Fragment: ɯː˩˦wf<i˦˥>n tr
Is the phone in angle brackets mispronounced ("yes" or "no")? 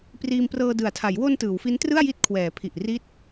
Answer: no